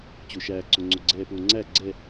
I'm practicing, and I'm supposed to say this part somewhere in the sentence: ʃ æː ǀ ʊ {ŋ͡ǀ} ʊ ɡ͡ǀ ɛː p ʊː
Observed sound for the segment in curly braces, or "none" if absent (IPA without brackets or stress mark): ŋ͡ǀ